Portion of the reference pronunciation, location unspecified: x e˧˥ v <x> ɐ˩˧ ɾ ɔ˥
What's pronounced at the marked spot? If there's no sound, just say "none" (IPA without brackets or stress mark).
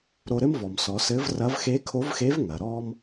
ŋ